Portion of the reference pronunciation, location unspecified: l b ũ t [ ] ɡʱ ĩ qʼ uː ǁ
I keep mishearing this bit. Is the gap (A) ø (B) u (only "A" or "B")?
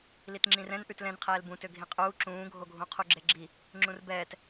A